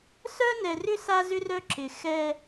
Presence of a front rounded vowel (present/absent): present